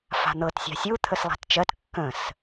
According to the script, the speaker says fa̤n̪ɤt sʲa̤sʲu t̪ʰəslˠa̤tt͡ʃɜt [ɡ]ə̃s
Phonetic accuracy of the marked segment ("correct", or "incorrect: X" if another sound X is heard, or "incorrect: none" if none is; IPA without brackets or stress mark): incorrect: kː